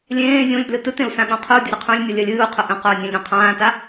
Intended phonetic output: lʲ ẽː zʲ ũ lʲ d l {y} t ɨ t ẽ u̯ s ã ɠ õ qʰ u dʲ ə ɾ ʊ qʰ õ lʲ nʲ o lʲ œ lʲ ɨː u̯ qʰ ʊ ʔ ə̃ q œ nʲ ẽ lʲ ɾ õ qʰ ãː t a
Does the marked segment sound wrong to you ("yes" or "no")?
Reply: yes